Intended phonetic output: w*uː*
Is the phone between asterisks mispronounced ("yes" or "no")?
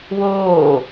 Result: yes